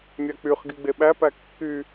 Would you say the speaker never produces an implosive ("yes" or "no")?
no